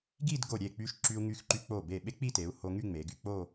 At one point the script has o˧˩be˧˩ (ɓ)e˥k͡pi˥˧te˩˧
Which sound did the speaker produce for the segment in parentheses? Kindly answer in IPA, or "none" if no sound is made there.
ɓ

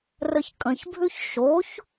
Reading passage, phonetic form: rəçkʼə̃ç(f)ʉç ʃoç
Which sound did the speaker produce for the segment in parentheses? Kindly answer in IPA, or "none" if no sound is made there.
bʱ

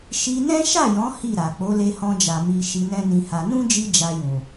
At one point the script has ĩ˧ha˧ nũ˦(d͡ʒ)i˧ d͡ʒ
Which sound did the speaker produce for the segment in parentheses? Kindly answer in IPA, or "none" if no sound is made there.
d͡ʒ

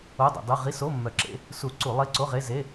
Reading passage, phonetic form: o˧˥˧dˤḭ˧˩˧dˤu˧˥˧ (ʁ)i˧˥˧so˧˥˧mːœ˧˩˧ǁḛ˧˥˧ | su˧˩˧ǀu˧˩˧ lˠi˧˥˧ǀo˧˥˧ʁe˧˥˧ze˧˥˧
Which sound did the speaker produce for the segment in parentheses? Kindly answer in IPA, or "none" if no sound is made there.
ʁ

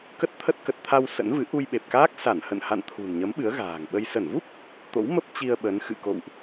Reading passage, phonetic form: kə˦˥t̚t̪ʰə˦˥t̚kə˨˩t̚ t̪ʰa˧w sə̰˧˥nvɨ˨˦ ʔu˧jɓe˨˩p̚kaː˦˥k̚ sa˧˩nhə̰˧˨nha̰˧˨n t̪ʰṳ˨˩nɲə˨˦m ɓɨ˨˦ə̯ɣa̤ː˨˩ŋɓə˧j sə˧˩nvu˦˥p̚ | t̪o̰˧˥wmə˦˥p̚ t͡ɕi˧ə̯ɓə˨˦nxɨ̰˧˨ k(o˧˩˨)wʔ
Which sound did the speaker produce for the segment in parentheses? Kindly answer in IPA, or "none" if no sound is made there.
o̰˧˨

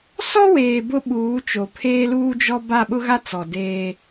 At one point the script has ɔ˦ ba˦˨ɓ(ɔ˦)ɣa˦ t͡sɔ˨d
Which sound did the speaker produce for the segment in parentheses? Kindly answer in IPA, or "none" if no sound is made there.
ʊ˦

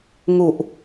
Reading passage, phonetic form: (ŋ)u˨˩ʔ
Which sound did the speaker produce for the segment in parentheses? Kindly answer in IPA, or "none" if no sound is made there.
ŋ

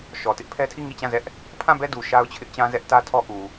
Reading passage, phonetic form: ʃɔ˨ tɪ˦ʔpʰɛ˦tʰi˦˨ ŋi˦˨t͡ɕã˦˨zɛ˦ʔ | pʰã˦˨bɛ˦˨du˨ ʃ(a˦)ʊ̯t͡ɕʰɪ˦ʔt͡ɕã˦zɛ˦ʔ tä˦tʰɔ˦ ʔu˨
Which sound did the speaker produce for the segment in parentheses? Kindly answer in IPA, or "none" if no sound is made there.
a˦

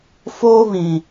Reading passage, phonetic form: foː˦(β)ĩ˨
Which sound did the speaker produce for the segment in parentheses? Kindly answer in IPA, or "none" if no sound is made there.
β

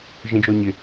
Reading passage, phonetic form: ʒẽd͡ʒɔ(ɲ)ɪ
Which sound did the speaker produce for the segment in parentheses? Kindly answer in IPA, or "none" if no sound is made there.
ɲ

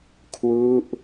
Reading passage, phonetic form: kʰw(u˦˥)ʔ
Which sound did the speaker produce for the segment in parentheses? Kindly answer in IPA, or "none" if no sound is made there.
u˦˥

